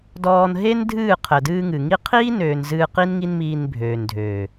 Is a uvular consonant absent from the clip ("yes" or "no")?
no